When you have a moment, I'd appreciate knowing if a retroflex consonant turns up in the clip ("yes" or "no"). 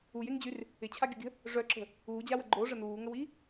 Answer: yes